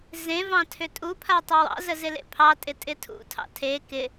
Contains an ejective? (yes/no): yes